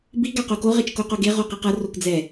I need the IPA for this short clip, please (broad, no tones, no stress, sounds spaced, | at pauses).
b i ɡ a q o k o ʁ e t͡ʃ k o q o ɡ e ʁ o q i q ʌ r o k d͡z ɛ